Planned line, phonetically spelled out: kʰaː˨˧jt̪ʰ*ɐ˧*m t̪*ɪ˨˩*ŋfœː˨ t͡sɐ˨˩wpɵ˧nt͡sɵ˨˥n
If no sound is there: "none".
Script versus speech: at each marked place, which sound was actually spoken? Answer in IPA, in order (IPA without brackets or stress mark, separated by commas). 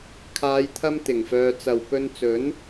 ɐ˧, ɪ˨˩